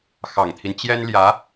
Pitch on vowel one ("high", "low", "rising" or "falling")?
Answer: low